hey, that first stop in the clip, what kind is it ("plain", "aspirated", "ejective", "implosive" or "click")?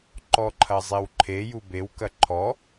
click